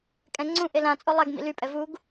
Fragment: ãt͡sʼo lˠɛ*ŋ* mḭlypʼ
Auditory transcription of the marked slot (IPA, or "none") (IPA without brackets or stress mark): ɡ